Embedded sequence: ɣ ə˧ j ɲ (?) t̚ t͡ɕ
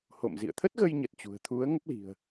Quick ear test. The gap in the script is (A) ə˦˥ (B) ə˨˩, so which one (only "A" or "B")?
B